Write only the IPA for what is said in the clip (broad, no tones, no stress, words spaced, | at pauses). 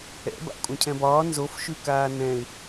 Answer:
ɛ̰ ba̰kʷʼãcʰɛ̃bɒː nzofʃʉ kaːnɛ̃ɪ̯